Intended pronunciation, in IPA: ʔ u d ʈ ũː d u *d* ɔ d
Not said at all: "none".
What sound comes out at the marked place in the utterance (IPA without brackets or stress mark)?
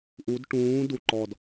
ǃ